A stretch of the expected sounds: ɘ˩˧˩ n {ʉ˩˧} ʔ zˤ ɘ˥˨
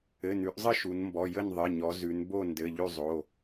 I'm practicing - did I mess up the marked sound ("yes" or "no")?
no